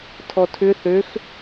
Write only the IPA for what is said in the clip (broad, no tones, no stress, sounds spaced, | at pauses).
tʰ ɔ tʰ ʏ θ ø x